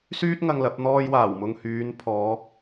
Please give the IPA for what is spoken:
syː˥t̚ŋɐ˧ŋ lɐ˨˥p̚n̪ɔː˥jwaː˨˩wmʊ˧ŋ hyː˨˧npʰɔː˨˧

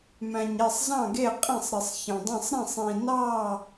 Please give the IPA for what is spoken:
mæ̃˧ɲe˥˧sˤzɑ̃˥˧ɡe˥˧ qʼĩ˥˧sˤɾi˧sˤçɑ̃˧dˤĩ˥˧sˤ ɾĩ˥˧sˤĩ˧ nɑ˥˧

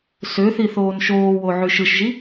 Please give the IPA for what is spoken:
søθi θoːnʃoːwo ʕyʃɯʃʒi

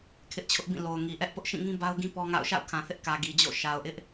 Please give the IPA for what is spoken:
kʰɪ˦ʔt͡ɕʰʊ˦ʔbĩ˦˨ lo˨ʊ̯ŋi˨ʔɛ˦ʔ pʊ˦ʔʃĩ˦˨ŋĩ˦ ba˦ʊ̯ɡĩ˦ pɔ˦ŋa̰˦˨ʊ̯ ʃa̰˦˨ʊ̯kʰã˨θɪ˦ʔ kä˨ ɡi˨d͡ʑo̰˦˨ ʃa˨ʊ̯ʔɪ˦ʔ

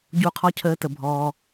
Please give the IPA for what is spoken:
ɟu˧qʰɔ˧cʰəː˨˦ tə˨ bʱɔː˧

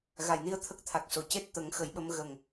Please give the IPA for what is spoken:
ɣa˨˩˨jni˧ə̯t̪ʰə˦˥k̚ t̪ʰa˨˩k̚so˨˩ ce˦˥t̚ t̪ə˨˩˦ŋxə˨˩˦jɓə˧˥m ɣə˨˩ŋ

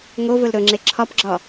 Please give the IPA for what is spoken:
ŋovɵl ɾɵŋ͡ǁe ǁʰɒpɡ͡ǁɒ

